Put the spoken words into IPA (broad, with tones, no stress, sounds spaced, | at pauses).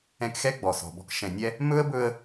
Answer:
ɛ̃˧ k x ɛ˥ ɡ͡b ɔ˩ s ɔ̤˩ b ɔ̤˧ k ʃ ɛ̃˩ nʲ ɛ˧ | m ɵ˥ ə̯ b ɵ˧ ə̯